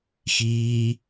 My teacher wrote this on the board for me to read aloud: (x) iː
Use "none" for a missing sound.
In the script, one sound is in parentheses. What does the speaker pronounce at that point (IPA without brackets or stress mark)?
x